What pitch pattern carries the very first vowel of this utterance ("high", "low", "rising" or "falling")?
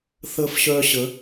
high